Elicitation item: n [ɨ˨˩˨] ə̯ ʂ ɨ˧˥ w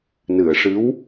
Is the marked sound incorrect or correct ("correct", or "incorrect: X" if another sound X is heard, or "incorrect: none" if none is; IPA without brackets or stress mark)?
correct